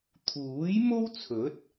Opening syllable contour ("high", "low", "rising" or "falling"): rising